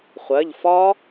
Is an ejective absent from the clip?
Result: yes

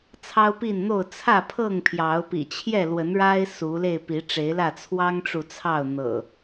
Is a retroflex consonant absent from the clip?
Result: no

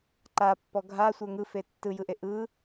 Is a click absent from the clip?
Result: no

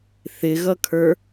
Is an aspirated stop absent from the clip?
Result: no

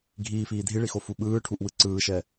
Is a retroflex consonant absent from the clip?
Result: no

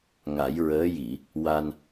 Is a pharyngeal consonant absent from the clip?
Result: yes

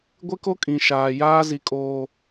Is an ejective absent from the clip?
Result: no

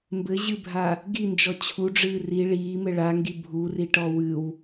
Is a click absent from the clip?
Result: yes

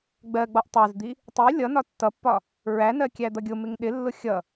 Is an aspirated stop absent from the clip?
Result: yes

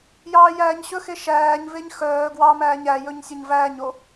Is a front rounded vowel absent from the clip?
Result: no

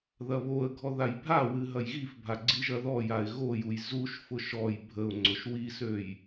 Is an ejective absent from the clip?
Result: yes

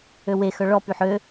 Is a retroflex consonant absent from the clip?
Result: no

